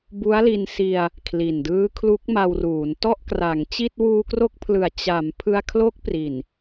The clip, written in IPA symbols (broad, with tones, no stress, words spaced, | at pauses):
bu˦˥a̯li˧n si˧a̯ | kʰli˨˩ndɯː˦˥ kʰlu˦˥k̚ma˧wruː˩˦n tɔ˥˩ʔkra˩˦ŋt͡ɕi˥˩t̚ wuː˧kro˦˥k̚pʰlɯ˨˩a̯ t͡ɕa˩˦m pʰɯ˧a̯kʰlo˦˥k̚pri˨˩n